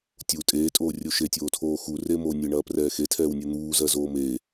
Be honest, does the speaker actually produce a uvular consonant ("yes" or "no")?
no